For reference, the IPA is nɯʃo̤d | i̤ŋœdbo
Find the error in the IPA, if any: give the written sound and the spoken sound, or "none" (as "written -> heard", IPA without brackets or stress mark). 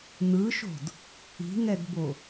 œ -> ɛ